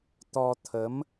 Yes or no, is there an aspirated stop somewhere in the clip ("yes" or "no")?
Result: yes